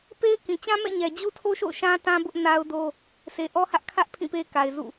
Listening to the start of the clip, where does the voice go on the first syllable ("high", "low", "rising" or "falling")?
high